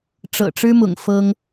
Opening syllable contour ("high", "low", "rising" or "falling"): low